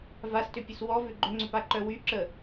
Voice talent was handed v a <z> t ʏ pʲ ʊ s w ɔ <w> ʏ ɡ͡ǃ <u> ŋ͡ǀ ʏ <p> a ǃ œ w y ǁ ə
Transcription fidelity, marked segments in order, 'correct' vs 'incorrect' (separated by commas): incorrect, incorrect, incorrect, correct